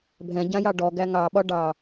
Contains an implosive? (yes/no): yes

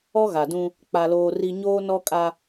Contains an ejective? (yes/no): yes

